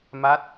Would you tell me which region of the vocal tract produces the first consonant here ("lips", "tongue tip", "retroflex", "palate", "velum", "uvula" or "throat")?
lips